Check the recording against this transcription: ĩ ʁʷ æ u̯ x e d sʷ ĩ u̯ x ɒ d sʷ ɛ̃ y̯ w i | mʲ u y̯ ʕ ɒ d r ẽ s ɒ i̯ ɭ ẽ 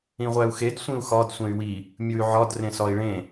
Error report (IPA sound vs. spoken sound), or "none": ɛ̃ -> ẽ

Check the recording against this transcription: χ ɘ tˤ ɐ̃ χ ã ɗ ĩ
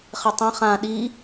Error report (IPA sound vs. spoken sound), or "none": ĩ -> i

